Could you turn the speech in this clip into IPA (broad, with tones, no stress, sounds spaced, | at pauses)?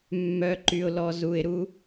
mː œ˨ ǃ y˨ ʊ̯ l ɔ˨ z u˨ ɪ̯ ɾ u˦